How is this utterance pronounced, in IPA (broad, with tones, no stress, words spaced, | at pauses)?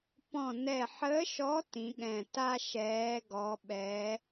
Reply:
pɔ̃˦˨nɛ˦˨ ħə˧˥ʃɔ˧˥ tĩ˧˥ɠɛ̃˦˨ ta˥ʃɛː˧˥ ɡɔ˧˥ɓɛ˧˥